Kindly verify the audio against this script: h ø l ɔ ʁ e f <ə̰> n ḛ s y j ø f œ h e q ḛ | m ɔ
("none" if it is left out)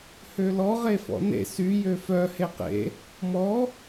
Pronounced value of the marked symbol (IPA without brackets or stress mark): ɔ̰